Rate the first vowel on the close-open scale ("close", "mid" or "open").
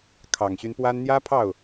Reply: open